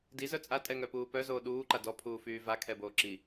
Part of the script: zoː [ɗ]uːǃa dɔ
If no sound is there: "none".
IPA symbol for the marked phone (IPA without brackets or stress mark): ɗ